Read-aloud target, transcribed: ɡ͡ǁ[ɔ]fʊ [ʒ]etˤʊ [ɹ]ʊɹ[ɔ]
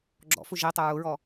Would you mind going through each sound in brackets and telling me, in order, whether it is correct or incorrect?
incorrect, correct, correct, correct

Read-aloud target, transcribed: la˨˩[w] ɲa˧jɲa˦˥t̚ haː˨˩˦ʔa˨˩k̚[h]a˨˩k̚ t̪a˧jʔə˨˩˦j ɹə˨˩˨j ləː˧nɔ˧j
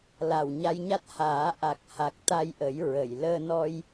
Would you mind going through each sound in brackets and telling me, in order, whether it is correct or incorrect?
correct, correct

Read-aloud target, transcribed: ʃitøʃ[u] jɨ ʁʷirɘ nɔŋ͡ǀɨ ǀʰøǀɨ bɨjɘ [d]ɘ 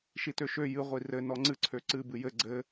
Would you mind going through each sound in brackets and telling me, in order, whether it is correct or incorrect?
incorrect, incorrect

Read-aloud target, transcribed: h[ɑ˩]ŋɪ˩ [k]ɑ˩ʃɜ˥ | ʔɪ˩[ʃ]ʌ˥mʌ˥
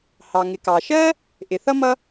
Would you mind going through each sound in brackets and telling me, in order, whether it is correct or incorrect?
correct, correct, incorrect

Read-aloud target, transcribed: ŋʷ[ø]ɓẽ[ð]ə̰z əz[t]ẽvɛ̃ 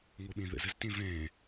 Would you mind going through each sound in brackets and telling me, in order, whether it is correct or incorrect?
incorrect, correct, correct

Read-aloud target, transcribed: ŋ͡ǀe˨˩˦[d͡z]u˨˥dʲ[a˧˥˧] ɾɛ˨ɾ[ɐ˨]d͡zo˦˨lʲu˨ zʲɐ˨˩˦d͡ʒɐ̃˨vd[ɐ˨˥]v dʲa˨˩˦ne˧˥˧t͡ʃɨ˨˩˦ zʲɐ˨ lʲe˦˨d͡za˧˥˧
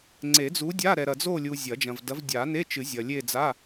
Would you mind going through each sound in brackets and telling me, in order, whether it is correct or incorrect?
correct, correct, correct, correct

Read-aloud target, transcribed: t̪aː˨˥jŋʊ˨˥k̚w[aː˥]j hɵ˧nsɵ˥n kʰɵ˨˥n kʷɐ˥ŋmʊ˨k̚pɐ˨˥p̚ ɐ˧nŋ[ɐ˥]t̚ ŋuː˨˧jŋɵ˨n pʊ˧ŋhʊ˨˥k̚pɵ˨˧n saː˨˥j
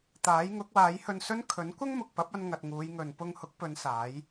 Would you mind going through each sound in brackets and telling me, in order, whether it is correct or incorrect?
incorrect, incorrect

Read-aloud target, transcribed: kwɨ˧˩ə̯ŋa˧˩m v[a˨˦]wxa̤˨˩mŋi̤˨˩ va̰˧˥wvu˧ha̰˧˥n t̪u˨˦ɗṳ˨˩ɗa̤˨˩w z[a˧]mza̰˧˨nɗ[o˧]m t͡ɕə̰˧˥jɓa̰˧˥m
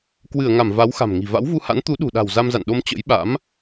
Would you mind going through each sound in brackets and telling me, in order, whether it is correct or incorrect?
correct, correct, correct

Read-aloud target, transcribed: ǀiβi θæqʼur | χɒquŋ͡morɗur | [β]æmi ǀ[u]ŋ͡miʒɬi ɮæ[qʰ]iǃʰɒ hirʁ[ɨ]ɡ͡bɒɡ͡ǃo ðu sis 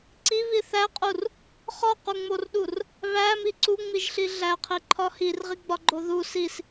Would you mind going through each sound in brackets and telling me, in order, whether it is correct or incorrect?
correct, correct, correct, incorrect

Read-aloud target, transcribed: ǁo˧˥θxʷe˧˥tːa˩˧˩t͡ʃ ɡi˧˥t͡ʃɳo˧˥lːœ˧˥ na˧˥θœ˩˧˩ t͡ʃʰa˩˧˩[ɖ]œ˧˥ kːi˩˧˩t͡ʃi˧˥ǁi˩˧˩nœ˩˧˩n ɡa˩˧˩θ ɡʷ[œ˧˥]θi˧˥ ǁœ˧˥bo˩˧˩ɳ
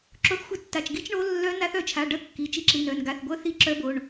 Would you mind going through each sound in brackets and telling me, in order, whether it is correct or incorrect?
correct, correct

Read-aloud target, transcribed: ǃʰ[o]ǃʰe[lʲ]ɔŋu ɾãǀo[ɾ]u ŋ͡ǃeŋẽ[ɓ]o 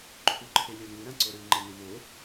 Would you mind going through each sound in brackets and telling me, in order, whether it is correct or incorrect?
incorrect, correct, correct, incorrect

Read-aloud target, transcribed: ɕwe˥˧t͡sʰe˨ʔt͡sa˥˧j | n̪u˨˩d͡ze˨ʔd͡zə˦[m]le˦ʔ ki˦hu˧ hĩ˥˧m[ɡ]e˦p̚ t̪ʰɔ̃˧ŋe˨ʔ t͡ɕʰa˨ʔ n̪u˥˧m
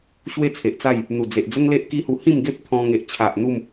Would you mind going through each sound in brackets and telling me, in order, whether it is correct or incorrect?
incorrect, correct

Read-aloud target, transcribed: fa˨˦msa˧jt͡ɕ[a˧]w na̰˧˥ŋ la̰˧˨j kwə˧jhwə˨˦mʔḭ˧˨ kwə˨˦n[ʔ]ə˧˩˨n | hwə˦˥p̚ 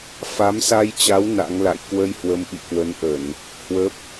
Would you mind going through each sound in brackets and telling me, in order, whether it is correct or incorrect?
incorrect, correct

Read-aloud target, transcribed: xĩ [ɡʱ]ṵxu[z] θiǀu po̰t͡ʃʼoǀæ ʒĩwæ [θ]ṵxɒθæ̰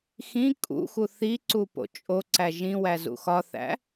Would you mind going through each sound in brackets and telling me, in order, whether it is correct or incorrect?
incorrect, incorrect, incorrect

